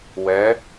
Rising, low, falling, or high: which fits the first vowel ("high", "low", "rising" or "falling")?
rising